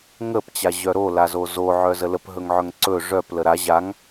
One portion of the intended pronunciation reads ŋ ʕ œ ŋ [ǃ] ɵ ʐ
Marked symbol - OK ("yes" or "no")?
no